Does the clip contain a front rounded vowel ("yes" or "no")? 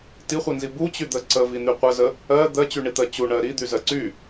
yes